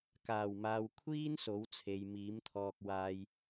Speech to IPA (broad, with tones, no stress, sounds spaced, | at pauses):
k aː˨˩ w m aː˨ w kʷʰ iː˥ n s o˨˥ w t͡sʰ e˨ j m iː˨˥ m t̪ʰ ɔː˧ k̚ w aː˧ j